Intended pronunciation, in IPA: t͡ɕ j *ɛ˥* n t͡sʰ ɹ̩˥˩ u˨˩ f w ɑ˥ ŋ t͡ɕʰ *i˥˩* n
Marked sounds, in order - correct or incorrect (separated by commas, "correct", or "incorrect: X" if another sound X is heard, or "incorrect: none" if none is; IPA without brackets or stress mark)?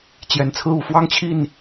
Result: incorrect: ɛ˨˩, correct